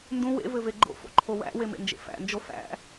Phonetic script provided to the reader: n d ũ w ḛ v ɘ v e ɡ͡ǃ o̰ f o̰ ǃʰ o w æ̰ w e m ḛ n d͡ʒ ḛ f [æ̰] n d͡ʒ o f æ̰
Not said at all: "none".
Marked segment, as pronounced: æ̰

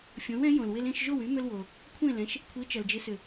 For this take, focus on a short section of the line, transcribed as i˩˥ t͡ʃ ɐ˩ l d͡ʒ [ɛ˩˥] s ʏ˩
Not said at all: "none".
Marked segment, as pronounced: ɪ˩˥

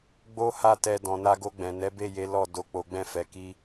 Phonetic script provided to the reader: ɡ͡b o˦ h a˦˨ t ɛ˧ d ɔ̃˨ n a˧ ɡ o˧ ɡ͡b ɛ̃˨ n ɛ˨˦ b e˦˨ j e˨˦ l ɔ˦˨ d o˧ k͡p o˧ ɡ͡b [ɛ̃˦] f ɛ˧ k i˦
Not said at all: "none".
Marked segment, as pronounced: ɛ̃˦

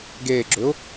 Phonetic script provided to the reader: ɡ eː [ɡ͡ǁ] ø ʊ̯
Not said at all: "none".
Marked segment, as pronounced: ɡ͡ǁ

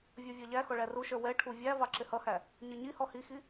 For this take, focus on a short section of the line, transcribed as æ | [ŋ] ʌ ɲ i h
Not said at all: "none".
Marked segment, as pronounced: ɲ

